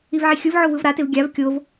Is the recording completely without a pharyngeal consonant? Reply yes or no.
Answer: no